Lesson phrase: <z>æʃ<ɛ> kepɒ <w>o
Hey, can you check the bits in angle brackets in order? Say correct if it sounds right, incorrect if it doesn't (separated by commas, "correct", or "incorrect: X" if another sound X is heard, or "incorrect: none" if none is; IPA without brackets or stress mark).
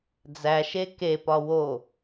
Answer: incorrect: d͡z, incorrect: e, correct